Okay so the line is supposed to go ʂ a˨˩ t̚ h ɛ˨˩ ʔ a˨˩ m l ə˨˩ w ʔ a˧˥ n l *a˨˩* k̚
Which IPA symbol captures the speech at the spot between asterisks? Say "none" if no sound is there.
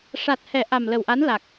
a˨˩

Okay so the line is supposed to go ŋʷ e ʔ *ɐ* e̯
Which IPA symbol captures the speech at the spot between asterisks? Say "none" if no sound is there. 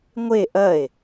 ɐ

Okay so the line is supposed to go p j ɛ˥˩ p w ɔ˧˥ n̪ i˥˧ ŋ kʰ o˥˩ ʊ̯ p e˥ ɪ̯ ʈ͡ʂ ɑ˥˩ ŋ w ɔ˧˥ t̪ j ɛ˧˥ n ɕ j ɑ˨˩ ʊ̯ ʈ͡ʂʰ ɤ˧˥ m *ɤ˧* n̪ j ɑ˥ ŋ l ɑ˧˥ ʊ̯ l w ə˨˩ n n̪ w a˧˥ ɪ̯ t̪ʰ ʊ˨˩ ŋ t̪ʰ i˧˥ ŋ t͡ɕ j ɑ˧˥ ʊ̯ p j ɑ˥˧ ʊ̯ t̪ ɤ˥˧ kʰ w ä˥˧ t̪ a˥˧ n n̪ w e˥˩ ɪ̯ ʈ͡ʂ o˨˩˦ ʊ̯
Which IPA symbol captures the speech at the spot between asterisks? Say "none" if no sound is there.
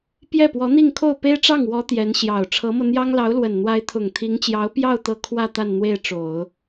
ɤ˧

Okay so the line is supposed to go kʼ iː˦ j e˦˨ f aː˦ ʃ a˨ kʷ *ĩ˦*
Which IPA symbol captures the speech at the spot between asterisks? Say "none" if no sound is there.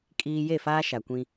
ĩ˦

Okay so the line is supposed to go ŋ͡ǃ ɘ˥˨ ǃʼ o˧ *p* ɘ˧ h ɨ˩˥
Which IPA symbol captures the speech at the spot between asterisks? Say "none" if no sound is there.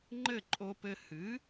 p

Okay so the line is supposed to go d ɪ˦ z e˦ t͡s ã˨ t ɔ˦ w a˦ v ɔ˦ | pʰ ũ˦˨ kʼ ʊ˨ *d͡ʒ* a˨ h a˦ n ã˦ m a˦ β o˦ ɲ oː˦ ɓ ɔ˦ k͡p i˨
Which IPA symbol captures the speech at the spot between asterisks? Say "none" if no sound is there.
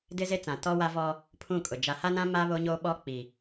d͡ʒ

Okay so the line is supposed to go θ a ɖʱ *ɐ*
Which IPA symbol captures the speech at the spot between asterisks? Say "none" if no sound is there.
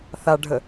ə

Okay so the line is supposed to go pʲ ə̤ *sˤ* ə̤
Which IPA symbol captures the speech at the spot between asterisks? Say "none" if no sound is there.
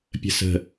s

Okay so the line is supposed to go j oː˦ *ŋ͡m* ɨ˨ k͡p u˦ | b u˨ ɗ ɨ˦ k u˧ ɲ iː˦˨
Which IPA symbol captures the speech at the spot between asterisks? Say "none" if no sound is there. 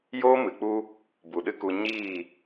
m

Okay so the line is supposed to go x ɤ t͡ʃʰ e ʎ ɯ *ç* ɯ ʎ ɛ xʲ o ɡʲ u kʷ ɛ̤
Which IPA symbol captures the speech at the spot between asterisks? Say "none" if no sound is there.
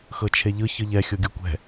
ç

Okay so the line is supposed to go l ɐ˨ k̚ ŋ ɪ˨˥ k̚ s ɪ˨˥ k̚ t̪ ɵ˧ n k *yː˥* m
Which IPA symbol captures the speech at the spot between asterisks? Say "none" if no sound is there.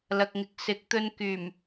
yː˨˩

